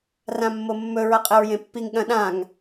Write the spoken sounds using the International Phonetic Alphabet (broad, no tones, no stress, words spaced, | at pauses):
rãmːomːɵ ɹɐqʼeɹjẽpːiŋ ɠɐ̃ɗãŋ